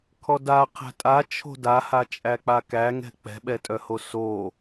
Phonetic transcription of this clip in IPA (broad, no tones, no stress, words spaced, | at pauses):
kʰɔda qʰæ̤tʼa t͡ʃʰo̤dahat͡ʃʼæ k͡pakæŋɛ̤ k͡pɛ̤ɓɛtʼœho so